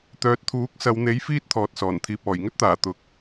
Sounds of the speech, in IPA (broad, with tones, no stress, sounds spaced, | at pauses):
t̪ œː˧ t̚ t̪ʰ uː˨˥ k̚ s ɐ˨˧ w n̪ e˨˥ j f iː˥ t̚ t̪ʰ ɔː˨ t̚ s ɔː˨˩ n t̪ʰ iː˨ p̚ ɔː˨˩ j ŋ ɵ˥ t̚ t̪ aː˨˩ t̪ ʊ˨˥ k̚